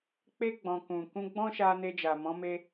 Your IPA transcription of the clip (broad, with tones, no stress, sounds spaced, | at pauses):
k͡p e˧ ɡ͡b ɔ̃˨ k ũ˨ k ũ˧ ɡ͡b ɔ̃˦ ʃ a˧ n e˧ d͡ʒ a˨ m ɔ̃˨˦ m e˧